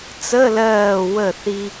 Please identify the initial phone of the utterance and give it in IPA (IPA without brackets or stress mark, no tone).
t͡s